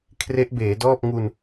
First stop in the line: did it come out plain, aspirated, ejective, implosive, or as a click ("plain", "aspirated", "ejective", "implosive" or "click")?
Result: aspirated